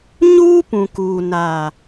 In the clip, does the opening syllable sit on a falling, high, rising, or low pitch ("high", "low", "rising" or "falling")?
high